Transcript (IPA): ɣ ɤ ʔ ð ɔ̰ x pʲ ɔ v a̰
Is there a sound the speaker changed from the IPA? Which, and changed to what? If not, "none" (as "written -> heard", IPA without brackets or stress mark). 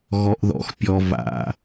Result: ɤ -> ɔ